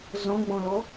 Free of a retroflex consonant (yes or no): yes